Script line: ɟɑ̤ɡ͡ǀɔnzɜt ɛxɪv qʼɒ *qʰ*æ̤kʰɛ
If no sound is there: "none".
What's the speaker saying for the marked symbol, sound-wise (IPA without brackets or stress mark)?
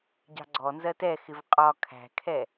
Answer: kʰ